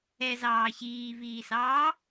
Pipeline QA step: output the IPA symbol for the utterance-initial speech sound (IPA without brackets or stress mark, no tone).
ɛ